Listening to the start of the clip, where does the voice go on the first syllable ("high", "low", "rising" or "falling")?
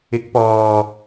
rising